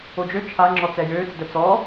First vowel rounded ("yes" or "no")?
yes